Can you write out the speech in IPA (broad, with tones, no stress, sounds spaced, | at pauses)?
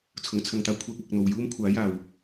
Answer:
t͡sʰ ʊ˨˩ ŋ t͡sʰ ɐ˨ ŋ t̪ aː˧ kʷʰ ɛː˧ k̚ œː˨ k̚ n̪ o˨ w j uː˥ m kʷʰ aː˨˥ j aː˨ w